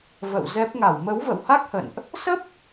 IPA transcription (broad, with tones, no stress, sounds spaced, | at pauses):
v ə̰˧˨ w z ɛ˦˥ p̚ ŋ a˧˩ w m ə˨˦ w v ə̰˧˨ w h a˦˥ k̚ h ə̰˧˨ n ʔ | s ə˦˥ p̚